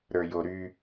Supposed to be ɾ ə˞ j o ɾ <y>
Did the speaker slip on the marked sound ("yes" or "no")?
no